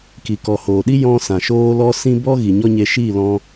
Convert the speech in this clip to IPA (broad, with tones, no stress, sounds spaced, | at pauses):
k i˨ k ɔ˨ h oː˨ ɗ i˦ j ɔ̃˧ s ã˨ ʃ oː˦ l ɔ˦ s ĩ˦ b ɔ˦ ɣ i˨ ɲ ɔ˦ ɲ e˧ ʃ iː˦˨ l ɔ̃˧